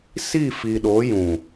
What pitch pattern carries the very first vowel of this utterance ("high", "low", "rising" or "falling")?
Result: falling